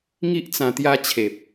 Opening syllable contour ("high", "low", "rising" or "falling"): high